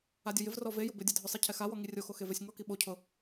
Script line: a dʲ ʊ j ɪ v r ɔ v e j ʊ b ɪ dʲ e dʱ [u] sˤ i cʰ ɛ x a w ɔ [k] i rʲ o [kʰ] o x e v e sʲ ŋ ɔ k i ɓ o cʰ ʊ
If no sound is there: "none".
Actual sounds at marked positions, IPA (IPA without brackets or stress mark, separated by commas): ʊ, ŋ, x